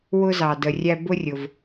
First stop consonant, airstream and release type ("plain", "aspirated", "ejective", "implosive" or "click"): plain